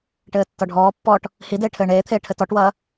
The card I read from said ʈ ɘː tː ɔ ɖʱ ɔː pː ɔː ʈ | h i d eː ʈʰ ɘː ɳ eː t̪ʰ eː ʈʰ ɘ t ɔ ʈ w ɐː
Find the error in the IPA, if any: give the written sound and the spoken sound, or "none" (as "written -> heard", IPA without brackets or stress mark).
none